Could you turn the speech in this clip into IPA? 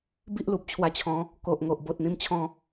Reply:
b i˦ ʔ l u˨ p̚ t͡ɕʰ w a˧ t͡ɕʰ ɔ̃˨˦ | k o˨ ʔ ŋ o˨ ʔ b o˨ t̚ n̪ ĩ˧ m t͡ɕʰ ɔ̃˥˧

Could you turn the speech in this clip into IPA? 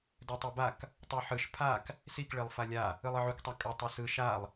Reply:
d ɛ tˤ i b a k | tˤ u ħ ɯ ʃ pʰ a k | s i k ɭ e lˠ f a lʲ a | ɯ lˠ ɯ ʕ u k tˤ a kʼ ɯ tˤ ɯ s ɯ ʃ a lˠ

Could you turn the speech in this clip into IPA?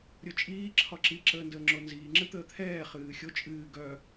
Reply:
ɾʲ o t͡ʃʼ iː ǁʰ ɒ ǁ i ǁ əː n d əː ŋ͡ǁ o n z iː ŋ͡ǁ ɨ t̪ əː t̪ʰ ɛː χ ɨː xʲ o t͡ʃʼ ɨː ɡ œ

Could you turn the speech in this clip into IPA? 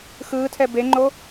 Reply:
x ɯː tʰ ɛ b e ŋ͡ǃ o

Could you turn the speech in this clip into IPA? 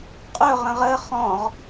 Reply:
qʼ ɵ ʁ ə̃ ʁ ə χ ɔ̃ ʁ

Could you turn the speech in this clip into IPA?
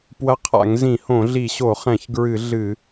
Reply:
p w ɐ˧ qʰ a̰˧˩˧ ŋ z ĩ˧˩˧ h õ˧˩˧ ɮ i˧˩˧ ɕ o˧˩˧ χ ɛ̃˧˩˧ ç ɡ ɹ ɨ˧˩˧ ɮ ɨ˧˩˧

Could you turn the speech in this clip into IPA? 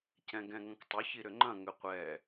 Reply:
c ɛ̃ ɡ ɛ̃ ŋ ɐ̃ k tˤ ʊ ç i ɾ ʏ ŋ͡ǃ ɐ̃ ŋ ʏ qʷ ɛ

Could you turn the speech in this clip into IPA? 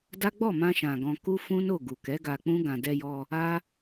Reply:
d a˦ ɡ͡b ɔ˦˨ m ã˧ ʃ ã˨ ɡ ɔ̃˧ k u˦ f ũ˦ n o˦˨ ɡ u˨ k ɛ˨˦ ɡ a˧ k͡p ũ˦ ɡ ã˧ d ɛ˧ j ɔ˧ | a˦

